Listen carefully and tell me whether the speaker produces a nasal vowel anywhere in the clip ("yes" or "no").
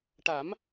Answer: no